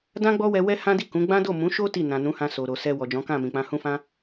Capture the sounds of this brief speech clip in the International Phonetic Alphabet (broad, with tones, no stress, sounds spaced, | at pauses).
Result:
d ã˦ ɡ͡b ɔ˦ w ɛ˧ w ɛ˦ h ã˦ d i˦˨ k ũ˨˦ ɡ͡b ã˦ d o˦˨ m ũ˨˦ ʃ o˦ t i˦˨ n ã˨ n ũ˨˦ h ã˧ s o˨ ɾ o˨ s ɛ˧ w ɔ˨ d͡ʒ ɔ̃˨˦ k ã˦˨ m ĩ˨ k͡p ã˧ h ũ˦ f ã˦